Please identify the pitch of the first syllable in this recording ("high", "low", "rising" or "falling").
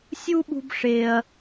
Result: high